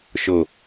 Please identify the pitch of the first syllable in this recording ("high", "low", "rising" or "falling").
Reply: low